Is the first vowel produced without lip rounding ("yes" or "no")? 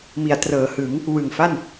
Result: yes